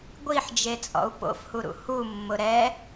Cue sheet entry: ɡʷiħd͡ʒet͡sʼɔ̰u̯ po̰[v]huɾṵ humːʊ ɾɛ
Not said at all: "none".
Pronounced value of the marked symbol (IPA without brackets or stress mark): f